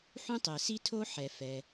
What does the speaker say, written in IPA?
ħũ˥tˤɛ˩si˥tʰo˥ ħɛ˩ fɛ˩

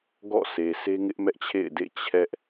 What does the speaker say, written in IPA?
ɡɔ̰˦˨sʰe˨sʰe˦ŋɪ˦ʔ mɛ˦ʔt͡ɕʰḛ˦˨ɪ̯dḛ˦˨ t͡ɕʰɛ˦ʔ

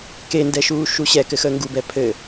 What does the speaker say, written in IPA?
kendɛʃuː ʃuɕɛ kɘxəːŋɡubɛ pʰɘ

